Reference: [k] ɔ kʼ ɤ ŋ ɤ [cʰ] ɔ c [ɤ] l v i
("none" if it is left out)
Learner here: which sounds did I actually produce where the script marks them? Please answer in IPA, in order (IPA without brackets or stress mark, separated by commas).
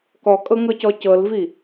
k, c, ɤ